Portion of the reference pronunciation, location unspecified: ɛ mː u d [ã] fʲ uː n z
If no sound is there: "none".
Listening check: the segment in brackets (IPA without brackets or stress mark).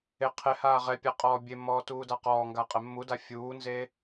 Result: a